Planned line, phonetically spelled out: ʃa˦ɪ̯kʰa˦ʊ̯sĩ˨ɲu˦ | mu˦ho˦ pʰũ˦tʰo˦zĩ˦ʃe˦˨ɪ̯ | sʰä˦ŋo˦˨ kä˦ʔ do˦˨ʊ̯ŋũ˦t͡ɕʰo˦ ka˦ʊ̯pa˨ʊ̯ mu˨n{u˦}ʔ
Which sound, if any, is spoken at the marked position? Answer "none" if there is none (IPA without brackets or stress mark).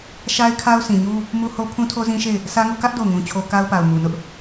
ʊ˦